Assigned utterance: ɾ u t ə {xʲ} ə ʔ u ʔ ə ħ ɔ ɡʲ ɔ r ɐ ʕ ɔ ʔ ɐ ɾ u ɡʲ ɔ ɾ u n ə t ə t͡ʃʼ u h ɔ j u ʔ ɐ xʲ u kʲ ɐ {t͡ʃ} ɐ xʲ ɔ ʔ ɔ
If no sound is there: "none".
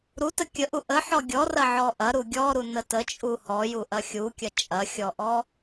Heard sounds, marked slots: kʲ, t͡ʃʼ

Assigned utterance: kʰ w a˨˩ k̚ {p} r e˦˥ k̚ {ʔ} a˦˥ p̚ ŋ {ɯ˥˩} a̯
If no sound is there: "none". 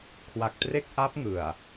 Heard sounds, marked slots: t, ʔ, ɯ˨˩

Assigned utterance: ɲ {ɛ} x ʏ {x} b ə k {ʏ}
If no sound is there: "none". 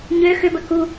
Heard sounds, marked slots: ø, none, u

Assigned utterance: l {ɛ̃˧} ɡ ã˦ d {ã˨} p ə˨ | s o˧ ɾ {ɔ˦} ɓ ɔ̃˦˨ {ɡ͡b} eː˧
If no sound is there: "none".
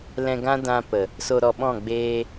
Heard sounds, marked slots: ɛ̃˧, ã˧, ɔ˧, ɡ͡b

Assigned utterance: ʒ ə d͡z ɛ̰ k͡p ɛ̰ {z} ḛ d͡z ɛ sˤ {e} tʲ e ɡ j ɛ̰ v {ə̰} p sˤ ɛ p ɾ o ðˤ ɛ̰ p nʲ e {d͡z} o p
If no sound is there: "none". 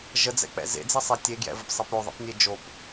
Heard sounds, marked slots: z, e, ə, d͡ʒ

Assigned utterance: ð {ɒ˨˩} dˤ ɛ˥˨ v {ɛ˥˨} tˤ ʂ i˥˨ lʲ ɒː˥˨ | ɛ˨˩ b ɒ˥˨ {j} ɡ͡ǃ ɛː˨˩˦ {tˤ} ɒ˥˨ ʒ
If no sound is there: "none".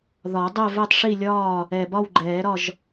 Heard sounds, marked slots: ɒ˨˩˦, ɛ˥˨, w, ɾ

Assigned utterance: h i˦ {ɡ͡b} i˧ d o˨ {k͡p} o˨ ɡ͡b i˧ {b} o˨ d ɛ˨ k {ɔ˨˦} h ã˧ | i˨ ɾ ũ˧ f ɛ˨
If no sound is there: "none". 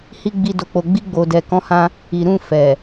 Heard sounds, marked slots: ɡ͡b, k͡p, ɡ͡b, ɔ̃˨˦

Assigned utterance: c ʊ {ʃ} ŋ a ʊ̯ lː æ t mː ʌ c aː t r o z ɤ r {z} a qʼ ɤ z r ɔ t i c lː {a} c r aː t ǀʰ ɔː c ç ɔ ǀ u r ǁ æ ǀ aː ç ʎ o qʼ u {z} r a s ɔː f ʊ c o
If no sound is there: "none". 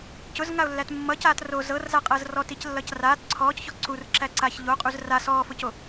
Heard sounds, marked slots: z, z, ʌ, z

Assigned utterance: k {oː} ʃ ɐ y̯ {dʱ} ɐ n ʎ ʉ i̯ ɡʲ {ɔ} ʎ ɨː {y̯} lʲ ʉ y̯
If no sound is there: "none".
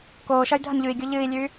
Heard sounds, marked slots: oː, dʱ, o, i̯

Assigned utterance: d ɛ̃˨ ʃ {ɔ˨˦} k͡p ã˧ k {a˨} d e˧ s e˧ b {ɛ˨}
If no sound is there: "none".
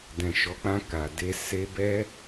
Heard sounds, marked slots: ɔ˨˦, a˨, ɛ˦

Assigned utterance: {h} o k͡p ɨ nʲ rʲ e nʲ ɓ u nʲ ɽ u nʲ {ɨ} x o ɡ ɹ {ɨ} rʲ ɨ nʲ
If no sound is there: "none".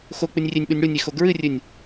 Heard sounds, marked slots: x, e, ɨ

